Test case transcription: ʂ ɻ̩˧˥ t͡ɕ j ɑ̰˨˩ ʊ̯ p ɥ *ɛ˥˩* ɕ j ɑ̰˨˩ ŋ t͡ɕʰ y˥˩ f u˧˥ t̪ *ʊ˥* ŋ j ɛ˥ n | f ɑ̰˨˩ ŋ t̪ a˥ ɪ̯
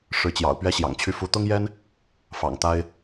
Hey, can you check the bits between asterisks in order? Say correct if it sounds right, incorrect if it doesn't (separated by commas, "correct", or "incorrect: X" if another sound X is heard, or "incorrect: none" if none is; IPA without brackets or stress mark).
incorrect: ɛ˥, correct